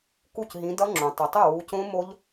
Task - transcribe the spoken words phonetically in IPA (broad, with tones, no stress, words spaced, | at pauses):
ku˥˩cɦĩ˨˦dʌ˦˥ŋ͡ǁõ˩ tˤʌ˩tˤo˥˩wu˨˦cõ˦˥ mo˦˥ʎ